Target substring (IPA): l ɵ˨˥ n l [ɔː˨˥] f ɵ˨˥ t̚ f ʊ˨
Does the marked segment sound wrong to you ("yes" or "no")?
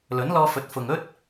yes